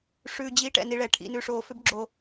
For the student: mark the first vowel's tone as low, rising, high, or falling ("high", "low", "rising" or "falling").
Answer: low